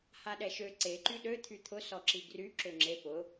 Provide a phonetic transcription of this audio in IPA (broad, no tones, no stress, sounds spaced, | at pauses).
h a ɗ ɛ ʃ ø ǀ e ǃ y ɗ ø t̪ʰ y t̪ʰ ʊ s ɔ ǁ i ɡ r y ǁ ø ŋ͡ǁ e p ʊ